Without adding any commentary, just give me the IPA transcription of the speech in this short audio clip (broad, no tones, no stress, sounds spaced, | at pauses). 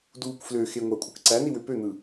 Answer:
d uː kʷ f l ø x e ŋʷ ɑ kʷʼ ɯ k ǀ æ n i w ø p ø n̪ ɯ